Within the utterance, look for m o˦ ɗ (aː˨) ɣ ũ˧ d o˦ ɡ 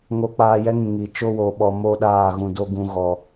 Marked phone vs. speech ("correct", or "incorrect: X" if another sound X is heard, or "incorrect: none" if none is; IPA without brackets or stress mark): incorrect: aː˦˨